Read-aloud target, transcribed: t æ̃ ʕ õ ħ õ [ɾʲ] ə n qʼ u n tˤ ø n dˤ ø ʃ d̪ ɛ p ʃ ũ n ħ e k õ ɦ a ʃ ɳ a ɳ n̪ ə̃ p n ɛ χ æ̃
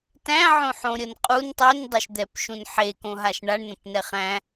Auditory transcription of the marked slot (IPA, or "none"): ɾʲ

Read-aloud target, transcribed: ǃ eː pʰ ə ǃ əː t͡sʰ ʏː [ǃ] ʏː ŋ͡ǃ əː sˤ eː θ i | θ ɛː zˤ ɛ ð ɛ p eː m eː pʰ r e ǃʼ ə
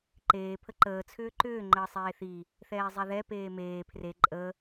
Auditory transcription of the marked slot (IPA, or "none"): ǃ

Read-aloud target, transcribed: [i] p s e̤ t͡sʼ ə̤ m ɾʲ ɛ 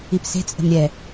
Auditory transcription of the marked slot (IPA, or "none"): i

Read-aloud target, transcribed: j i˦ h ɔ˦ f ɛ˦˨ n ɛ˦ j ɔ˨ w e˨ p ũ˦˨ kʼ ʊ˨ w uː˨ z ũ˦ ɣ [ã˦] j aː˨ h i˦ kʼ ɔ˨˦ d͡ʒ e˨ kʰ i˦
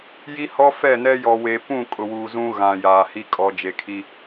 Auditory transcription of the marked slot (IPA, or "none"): ã˨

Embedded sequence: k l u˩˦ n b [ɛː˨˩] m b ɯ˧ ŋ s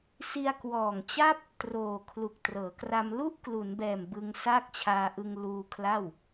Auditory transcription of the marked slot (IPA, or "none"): ɛː˨˩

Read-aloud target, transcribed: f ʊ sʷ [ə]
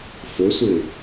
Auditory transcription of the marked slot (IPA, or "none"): ɪ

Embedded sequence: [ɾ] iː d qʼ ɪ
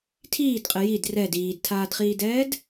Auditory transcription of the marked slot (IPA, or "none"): tʰ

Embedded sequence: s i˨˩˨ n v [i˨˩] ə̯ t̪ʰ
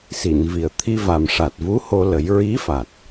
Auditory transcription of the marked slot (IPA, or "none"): i˨˩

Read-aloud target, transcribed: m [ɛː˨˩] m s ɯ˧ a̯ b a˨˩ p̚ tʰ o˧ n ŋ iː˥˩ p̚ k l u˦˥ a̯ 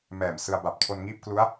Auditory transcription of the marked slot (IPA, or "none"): ɛː˨˩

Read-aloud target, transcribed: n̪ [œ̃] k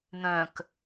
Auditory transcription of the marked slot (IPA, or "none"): œ̃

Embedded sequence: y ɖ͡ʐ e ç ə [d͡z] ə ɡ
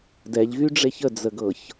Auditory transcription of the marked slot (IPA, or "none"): d͡z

